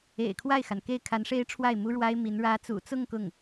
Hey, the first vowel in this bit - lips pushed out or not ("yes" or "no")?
no